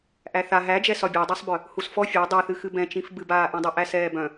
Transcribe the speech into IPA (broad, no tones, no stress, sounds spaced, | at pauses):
ʔ æ θ a ɦ æ d͡ʒ ɛ s ɒ bʲ æ dˤ a sˤ b œ | h u s f ɔ fʲ æ dˤ ɛ θ ɨ x ɨ b ɛ̃ t͡ʃ ĩ f b ɨ b aː ʔ ĩ dˤ u ʔ æ s ɛː b œ̃